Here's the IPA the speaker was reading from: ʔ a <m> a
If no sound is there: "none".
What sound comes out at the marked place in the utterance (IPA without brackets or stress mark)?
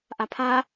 pʰ